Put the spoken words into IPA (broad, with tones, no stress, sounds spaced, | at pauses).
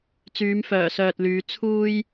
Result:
t͡s yː˨˧ m f œː˨˩ s œː˨ t̚ l yː˨˧ t͡sʰ uː˥ j